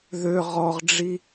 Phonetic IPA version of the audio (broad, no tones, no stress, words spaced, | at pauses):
ðø ʁɔʁɖ͡ʐi